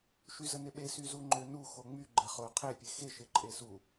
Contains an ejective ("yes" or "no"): yes